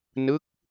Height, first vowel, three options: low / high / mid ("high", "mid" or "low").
high